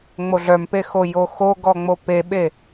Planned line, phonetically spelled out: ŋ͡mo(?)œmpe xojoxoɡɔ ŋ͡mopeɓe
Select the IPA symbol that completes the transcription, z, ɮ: ɮ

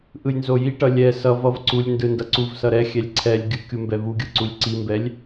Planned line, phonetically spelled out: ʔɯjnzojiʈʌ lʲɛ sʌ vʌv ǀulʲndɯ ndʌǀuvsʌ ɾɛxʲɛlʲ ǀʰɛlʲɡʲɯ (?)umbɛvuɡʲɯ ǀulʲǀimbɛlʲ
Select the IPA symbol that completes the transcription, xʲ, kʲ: kʲ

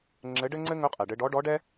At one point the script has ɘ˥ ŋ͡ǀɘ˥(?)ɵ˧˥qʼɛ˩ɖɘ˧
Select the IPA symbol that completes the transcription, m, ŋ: ŋ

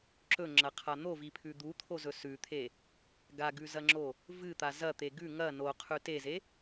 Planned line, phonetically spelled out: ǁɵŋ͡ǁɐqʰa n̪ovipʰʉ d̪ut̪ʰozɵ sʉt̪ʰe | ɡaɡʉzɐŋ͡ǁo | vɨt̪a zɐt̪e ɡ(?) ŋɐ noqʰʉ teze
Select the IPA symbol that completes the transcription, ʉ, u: ʉ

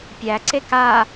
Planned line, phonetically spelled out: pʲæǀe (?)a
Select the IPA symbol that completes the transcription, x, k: k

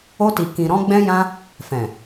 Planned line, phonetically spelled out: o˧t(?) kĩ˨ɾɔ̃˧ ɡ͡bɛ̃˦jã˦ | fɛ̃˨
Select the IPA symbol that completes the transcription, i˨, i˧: i˨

